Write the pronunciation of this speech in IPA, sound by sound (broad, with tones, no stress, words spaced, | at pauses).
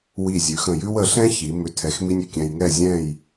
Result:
wi˧˩zʲʉ˩˧ xə̃˧˩jʉ˥w ə˩˧ɬɛ̃˥çi˩˧ mʏ˧ tʰɛ˧xmi˥nʲʏ˥˧ kʲɛ̃˧jŋɛ˥˧ zʲɛ̃˥˧j